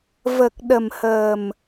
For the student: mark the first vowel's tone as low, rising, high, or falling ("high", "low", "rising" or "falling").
low